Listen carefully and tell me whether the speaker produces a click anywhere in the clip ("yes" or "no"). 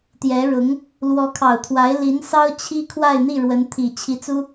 no